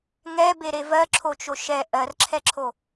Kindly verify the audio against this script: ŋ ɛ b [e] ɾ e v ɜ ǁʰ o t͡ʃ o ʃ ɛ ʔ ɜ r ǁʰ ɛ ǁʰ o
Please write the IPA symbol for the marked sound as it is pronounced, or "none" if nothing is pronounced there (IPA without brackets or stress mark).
e